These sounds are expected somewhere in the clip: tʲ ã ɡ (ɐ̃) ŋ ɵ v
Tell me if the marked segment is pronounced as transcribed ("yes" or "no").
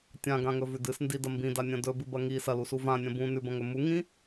no